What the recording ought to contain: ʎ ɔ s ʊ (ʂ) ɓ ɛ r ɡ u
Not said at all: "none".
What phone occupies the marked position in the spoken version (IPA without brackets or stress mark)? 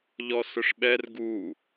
ʂ